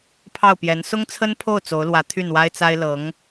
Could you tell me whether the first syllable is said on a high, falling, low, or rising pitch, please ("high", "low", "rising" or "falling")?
falling